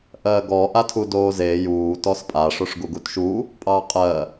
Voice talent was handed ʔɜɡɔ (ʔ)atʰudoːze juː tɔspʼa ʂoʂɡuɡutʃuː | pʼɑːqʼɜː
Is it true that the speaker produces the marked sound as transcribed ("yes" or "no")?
yes